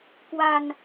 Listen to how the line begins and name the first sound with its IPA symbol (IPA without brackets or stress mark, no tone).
k